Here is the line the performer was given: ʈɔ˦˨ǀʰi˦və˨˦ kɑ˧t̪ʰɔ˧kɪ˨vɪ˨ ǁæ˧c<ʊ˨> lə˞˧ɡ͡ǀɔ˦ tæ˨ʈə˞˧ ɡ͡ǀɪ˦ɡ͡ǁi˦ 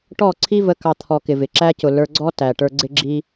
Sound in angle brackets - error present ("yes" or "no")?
no